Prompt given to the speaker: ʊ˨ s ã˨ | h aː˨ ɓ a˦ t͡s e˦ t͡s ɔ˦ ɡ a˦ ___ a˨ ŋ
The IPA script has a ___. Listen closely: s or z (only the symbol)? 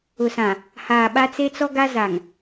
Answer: z